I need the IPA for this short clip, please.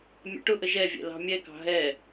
mʲɛ̰ʈʊʔə ʒɛvʲɛ̰ lɑ̤mʲɛkɑ̤ ɦɛ

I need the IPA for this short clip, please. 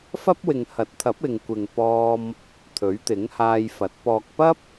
fɐ˥p̚wɪ˨ŋhɐ˨˥t̚t̪ʰɐ˨˥p̚ ɪ˨ŋkʷɪ˨ŋpɔː˧m | t̪ʰɵ˨˥ɥt̪ɪ˨˥ŋhaː˧jfɐ˨˥t̚ pɔː˨k̚pɐ˥p̚

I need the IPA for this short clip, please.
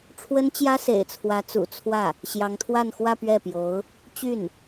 ʈ͡ʂʰwə˥nt͡ɕjä˥sḛ˨˩ɪ̯t͡sʰwä˧˥ t͡sṵ˨˩ t͡sʰwä˥˩ | ɕjɑ˧˥ŋt̪ʰwa˥˧nxwä˥˧ pɥɛ˥˩pjo˧˥ʊ̯ | t͡ɕy˥˩n

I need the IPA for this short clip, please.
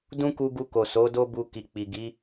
dũ˦ku˧ɡu˧ko˨ so˨˦do˦bu˧ ki˨k͡pi˨ɡi˨˦

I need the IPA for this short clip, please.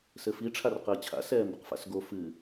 sɘfi ʈ͡ʂʰarqəːt͡ɕʰa̰ sɛːmbəqfa̰sɡo fɨː

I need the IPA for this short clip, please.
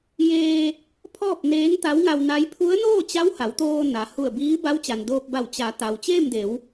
jeː˧ | pʰɔː˥˨p̚neː˧˥ŋt̪a˧˥w ŋa˧wna˧˥j pʰu˧˥ə̯noː˥˨ t͡ɕa˧˥w ha˩˧wt̪oː˧na˩ hu˧˩ə̯biː˧˥ ba˧˥wt͡ɕa˩ndoː˧p̚ba˧˩w t͡ɕa˩˧ t̪a˩wt͡ɕeː˥˨mde˩˧w

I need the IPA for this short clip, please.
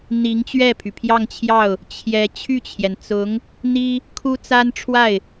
n̪i˧˥ŋ t͡ɕɥɛ˥˩pʰy˩pʰjɑ˥˧ŋt͡ɕʰjɑ˥˩ʊ̯ | t͡ɕʰjɛ˧˥ t͡ɕʰy˥˩t͡ɕʰjɛ˩nt͡sʊ˧˥ŋ | n̪i˥ | kʰu˥ t͡sa˥nʈ͡ʂʰwa˥˩ɪ̯

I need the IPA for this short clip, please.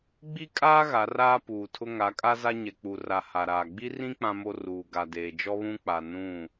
ɡ͡bi˦kʼaː˦ ɣa˨˦raː˦puː˨tʰʊ˦ ŋa˨˦kʼa˦za˦ ɲɛ˨k͡pu˨ra˨ ha˨ɾaː˨ ɡ͡bi˦rĩ˦ k͡pã˦mo˦ ruː˨ɡa˨deː˨ d͡ʒɔ˦βũ˦k͡pa˨ nũ˦˨

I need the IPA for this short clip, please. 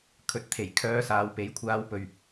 kʰɵ˨˥t̚t̪ʰe˨˩j kʰœː˧saː˨˧w pe˨˥jkʷʰaː˧wpɵ˨ɥ

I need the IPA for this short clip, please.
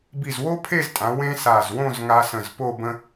bi˧˩zwo˥pʰe˥˧ztʼã˩˧ wẽ˥sa˧˩z wõ˥˧zŋa˧ sə̃˧˩zpo˥˧bə̃˥

